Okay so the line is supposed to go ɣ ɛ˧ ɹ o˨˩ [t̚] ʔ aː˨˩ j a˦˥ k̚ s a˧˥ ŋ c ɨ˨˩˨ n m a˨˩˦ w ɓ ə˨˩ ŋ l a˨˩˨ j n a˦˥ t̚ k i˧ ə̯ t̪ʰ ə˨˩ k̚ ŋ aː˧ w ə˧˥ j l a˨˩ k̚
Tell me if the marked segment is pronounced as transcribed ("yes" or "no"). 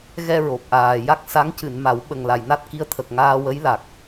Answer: no